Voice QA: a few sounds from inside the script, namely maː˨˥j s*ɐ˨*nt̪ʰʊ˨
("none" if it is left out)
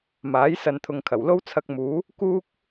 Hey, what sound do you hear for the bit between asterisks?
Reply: ɐ˨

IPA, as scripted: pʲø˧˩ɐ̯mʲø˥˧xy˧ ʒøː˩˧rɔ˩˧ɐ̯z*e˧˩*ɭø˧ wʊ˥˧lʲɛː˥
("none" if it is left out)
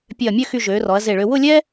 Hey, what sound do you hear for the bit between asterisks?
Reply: e˧˩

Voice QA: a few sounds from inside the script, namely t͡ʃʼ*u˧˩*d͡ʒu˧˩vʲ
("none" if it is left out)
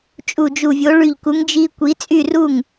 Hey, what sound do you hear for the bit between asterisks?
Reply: u˧˩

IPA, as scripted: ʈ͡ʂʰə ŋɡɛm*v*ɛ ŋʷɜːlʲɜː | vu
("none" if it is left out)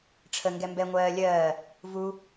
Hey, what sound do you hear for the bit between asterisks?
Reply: b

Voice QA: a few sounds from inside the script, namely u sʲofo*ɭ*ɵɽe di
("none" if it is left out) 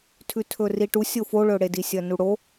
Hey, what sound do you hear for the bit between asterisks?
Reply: ɭ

